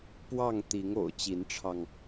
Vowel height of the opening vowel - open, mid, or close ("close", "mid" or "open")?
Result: open